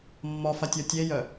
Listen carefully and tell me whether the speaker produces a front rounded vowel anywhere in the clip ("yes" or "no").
yes